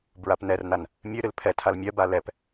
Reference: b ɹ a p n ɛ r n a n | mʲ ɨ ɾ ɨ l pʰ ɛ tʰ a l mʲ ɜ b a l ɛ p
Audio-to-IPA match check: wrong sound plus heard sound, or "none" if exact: none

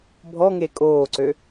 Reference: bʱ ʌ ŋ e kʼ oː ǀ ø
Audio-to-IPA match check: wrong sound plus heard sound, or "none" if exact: ʌ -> ɔ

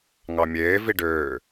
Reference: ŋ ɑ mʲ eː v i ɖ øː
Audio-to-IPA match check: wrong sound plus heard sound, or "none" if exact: none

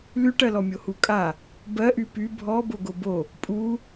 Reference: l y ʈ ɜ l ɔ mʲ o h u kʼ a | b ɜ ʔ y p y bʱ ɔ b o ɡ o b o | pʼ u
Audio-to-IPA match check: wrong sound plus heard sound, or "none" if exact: none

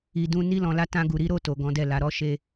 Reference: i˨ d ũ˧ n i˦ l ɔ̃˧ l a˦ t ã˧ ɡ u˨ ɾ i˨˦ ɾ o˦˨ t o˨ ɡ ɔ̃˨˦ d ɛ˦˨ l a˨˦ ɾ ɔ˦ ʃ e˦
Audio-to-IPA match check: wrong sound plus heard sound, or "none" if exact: none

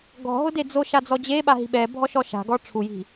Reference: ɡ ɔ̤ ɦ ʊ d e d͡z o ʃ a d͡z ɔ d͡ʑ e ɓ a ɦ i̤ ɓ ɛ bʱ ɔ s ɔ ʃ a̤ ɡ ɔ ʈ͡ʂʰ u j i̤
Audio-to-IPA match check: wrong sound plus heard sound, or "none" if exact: s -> ʃ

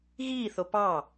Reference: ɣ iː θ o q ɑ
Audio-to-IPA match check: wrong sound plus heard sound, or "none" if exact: q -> p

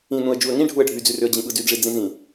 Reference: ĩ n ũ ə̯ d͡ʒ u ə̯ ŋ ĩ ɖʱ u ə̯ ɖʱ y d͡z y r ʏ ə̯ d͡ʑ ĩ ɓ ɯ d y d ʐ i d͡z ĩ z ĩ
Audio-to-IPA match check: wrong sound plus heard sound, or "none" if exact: none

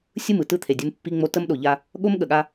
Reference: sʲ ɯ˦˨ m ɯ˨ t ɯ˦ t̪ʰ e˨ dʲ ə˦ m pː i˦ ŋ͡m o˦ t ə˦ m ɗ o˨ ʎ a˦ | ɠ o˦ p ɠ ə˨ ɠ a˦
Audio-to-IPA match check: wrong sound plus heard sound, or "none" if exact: p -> m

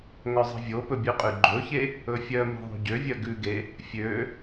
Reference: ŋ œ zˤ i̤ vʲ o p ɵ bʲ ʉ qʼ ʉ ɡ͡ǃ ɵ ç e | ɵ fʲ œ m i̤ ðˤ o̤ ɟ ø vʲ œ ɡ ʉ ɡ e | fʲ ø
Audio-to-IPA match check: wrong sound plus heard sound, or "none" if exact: none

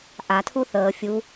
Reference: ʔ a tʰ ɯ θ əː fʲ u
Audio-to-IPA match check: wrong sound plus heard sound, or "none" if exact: ɯ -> u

